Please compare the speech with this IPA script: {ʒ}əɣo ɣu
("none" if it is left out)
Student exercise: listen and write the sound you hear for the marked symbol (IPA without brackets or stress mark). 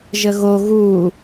ʒ